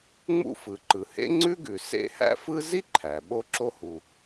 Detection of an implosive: present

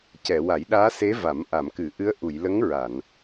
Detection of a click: absent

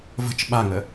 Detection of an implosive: present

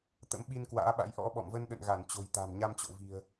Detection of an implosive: present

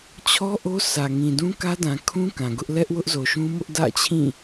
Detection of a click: absent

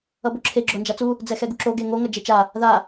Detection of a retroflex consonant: absent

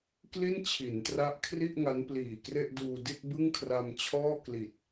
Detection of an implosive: absent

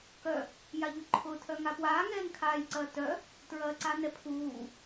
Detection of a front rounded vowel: present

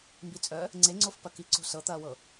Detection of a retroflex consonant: absent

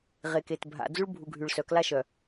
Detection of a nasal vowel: absent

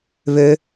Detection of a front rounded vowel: present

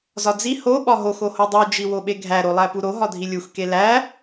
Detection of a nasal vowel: absent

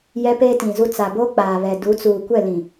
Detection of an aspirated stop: absent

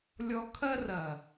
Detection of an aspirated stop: present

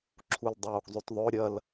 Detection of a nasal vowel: absent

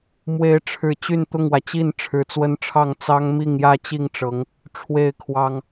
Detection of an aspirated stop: present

